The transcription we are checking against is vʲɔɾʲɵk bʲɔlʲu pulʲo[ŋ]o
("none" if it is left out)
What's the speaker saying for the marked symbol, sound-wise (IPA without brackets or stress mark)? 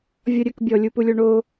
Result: ɳ